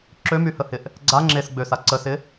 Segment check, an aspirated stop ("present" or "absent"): absent